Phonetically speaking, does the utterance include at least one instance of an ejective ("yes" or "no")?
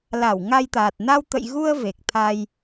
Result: no